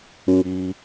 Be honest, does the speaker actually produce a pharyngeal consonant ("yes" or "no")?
no